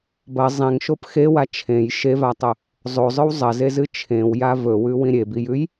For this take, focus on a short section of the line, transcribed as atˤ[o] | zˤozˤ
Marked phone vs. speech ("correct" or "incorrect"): incorrect